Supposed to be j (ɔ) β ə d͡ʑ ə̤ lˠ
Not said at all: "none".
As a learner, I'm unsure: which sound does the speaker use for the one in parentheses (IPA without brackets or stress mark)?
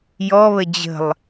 ɔ